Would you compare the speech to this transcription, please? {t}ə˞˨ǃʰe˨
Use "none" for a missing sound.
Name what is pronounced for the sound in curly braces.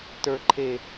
t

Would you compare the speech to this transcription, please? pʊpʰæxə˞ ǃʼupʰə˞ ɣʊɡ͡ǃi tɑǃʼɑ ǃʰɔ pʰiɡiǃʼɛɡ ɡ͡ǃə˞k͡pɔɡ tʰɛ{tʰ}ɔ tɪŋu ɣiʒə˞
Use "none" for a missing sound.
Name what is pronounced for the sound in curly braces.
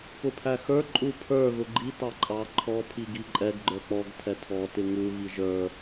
tʰ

